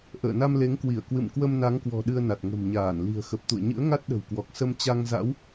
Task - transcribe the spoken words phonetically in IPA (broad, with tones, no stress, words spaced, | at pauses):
ʔə̰ː˧˨na˧mle˨˦ŋkwi˧˩ə̯ kwɨ̰˧˨mkwə˧mna˨˦ŋkwɔ̤˨˩ ɗɨ˧ə̯na˨˩t̚ ŋə̤˨˩mɲaː˧˩n li̤˨˩ə̯xə˨˩p̚t̪ṵ˧˨ə̯ ɲɨ̰˧˥ə̯ŋa˦˥t̚ ɗə̤˨˩wkwɔ˨˩k̚sə˧m t͡ɕa˧ŋza̰˧˥w